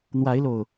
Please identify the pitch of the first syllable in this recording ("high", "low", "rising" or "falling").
rising